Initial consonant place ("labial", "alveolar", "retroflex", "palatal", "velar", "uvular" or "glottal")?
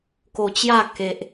velar